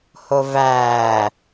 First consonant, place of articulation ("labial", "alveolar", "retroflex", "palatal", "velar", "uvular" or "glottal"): glottal